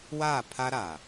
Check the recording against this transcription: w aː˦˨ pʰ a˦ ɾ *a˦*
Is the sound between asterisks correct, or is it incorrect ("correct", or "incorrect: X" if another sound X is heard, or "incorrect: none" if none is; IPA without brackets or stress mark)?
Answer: incorrect: a˨